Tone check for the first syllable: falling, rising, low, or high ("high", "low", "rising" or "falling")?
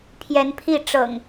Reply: rising